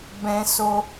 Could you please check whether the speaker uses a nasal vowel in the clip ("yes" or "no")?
yes